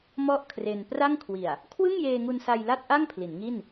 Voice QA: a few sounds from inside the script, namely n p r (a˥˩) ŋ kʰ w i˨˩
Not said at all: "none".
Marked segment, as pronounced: a˥˩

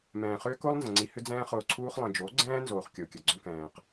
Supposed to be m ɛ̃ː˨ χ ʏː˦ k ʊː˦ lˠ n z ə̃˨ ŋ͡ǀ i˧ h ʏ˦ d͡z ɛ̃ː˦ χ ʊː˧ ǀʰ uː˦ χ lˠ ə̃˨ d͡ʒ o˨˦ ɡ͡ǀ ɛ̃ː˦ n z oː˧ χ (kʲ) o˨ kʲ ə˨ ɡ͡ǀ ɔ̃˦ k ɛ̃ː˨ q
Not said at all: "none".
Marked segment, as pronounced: kʲ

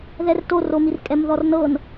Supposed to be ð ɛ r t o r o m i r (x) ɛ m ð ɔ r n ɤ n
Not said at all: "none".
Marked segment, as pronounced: kʼ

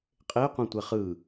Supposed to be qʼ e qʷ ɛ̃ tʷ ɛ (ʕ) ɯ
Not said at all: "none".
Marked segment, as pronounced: χ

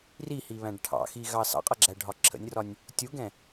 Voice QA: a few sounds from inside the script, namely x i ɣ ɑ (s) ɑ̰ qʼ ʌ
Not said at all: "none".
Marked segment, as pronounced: s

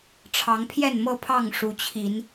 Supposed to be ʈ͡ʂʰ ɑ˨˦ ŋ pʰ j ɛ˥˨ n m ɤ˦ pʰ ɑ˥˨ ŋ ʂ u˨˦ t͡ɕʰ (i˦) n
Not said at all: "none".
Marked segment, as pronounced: i˨˦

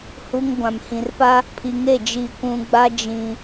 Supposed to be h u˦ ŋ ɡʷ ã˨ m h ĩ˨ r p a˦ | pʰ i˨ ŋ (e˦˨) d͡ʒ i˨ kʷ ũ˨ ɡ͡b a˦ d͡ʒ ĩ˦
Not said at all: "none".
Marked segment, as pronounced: e˦˨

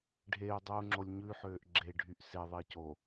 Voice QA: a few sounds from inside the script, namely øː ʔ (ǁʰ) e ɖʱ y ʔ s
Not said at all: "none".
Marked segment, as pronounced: ɡ͡ǁ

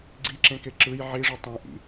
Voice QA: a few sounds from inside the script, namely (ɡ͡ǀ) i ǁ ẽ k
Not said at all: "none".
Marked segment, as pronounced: ɡ͡ǀ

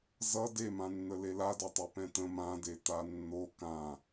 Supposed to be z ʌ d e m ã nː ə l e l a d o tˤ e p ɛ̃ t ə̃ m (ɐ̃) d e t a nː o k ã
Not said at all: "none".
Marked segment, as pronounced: ã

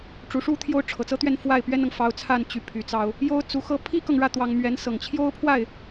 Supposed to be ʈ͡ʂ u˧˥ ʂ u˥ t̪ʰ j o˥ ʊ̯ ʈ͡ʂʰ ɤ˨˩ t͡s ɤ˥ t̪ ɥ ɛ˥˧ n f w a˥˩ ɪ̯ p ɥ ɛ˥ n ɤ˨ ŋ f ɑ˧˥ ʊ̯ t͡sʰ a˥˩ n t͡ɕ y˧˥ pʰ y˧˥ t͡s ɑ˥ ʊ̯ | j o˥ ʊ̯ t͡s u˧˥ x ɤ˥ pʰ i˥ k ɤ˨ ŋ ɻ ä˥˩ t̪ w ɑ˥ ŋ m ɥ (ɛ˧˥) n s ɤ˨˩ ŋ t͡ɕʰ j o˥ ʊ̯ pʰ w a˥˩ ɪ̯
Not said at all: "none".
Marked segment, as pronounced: ɛ˧˥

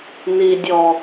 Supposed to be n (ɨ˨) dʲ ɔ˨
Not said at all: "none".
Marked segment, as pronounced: i˨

